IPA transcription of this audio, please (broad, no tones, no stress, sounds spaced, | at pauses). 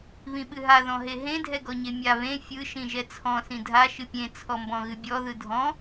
β ĩ ɓ ɨ ɦ a ð ɔ̃ ɦ e ɦ ẽ dʱ ɛ ɡ ɔ ɲ e mʲ a β ẽ fʲ ɯ ʃ ĩ ʒ ɛ t͡sʰ ɔ̃ s ĩ dʱ a ʃ ɨ pʲ ẽ t͡sʰ ɔ m b ɔ̃ ɣ ɨ bʲ ɔ ð ɯ dʱ ɔ̃